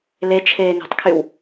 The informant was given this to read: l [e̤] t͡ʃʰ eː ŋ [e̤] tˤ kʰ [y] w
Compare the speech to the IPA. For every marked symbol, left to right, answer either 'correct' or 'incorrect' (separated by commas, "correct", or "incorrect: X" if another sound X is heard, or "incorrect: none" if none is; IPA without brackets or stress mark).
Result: incorrect: e, correct, correct